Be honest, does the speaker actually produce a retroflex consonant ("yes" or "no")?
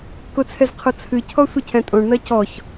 yes